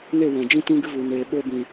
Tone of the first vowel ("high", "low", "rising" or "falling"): falling